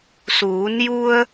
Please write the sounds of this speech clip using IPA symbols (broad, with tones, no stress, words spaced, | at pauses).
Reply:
suː˩˧nju˧ə̯